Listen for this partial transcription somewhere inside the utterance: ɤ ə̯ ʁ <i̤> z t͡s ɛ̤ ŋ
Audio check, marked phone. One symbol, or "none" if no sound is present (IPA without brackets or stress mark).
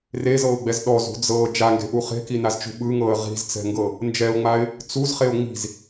i̤